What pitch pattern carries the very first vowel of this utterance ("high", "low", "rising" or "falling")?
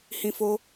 high